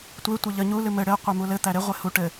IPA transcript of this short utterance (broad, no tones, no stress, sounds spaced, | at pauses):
tʷ e tʷ ɘ ʎ ə ɲ u l ɨ m ɘ ɽ ɘ qʷ e m u l ɘ t̪ æ ɾ e ʁʷ e h u ʈ ɘ